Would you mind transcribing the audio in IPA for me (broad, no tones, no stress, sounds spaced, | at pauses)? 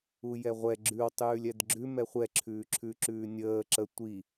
u j ɛ ʁʷ ɛ ɡ͡ǁ ʉ w tˤ ʉː lʲ ɛ d ɡ͡ǁ ʉ m ɛ χʷ ɛ ǁʰ ʉː ǁʰ ʉ ǁ ʉː nʲ əː ǁ ə tʷ i